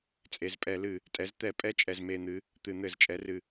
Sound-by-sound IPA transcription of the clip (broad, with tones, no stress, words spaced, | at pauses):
t͡sʼe˨˩zpʼɛ˧˩˧lɨ˧˩˧ | tʼɛ˩˥zt̪ɛ˧˩˧pʼɛ˧˥ t͡ʃʼɛ˨˩zme˨˩n̪ɨ˩˥ | t̪ɨ˧˩˧n̪ɘ˧˩˧zt͡ʃʼɛ˩˥rɨ˨˩